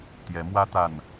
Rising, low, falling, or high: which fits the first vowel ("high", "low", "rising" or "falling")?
rising